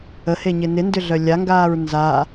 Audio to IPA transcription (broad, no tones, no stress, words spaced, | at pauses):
əheɲɪ nɪndʏɮœ lʲaŋɡaːɹ nza